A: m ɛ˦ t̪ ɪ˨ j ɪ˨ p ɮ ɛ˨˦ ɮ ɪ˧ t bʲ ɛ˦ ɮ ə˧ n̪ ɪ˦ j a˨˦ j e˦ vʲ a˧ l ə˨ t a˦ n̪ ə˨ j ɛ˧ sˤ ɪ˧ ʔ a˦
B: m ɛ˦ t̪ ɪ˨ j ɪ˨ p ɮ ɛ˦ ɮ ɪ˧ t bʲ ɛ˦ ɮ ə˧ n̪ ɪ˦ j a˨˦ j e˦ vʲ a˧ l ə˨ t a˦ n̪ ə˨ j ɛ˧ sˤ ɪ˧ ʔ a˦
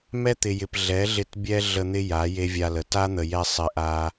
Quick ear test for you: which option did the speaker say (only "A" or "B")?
A